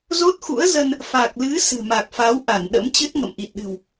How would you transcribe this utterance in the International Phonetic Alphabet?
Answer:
zo˦˥t̚xṵ˧˥ə̯zə˧n | fa˨˩k̚lɨ˨˦ sɨ̤˨˩ma˨˩k̚fa˨˦wʔa˧˩n ɗə̰˧˥mt͡ɕɨ˦˥t̚ ŋə̰˧˨mʔi˨˩t̚ɗɨ̤˨˩w

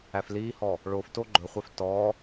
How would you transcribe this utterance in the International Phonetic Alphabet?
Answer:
æfliːhɔ | ɭofto ɡ͡ǃɵχʷɛf tɔ

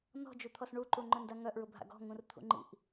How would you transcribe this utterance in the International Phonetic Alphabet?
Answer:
nɔ̤d͡ʒut̪ʰɔs ɳuǃuŋ͡ǃœnda ŋœʔɹʊbʱa̰ ɡɔ̤ŋũrt̪ʰṵŋ͡ǃḭʔ

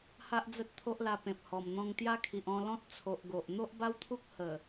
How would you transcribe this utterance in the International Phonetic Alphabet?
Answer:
ha˦ʔd͡zə˦t̚ t̪ʰo˦ʔla˧pẽ˨p̚hɔ˨˩m n̪ɔ̃˧ŋt̪ja˦ kʰi˨ʔɔ̃˧lɔ̃˦t̚ t͡sʰo˨ʔɡo˨ʔ n̪o˦ʔba˦wt̪ʰu˦k̚ hə˨˩

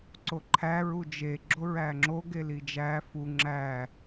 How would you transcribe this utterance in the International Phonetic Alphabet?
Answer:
ǀoǃʰæ ɹud͡ʒe ɡ͡ǁoɹæŋ͡ǁoɡe lid͡ʒæ fu ŋ͡ǁæ

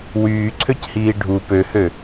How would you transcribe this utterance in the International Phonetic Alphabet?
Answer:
wyːǀʰøchiː ɖʱu pøhø

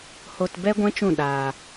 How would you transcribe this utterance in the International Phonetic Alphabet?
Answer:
ho˧t bɛ˦ɡʷɛ̃˦t͡ʃũ˦˨ ɗaː˧

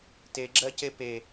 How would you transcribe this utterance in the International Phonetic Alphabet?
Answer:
teɡ͡ǁɜce pe

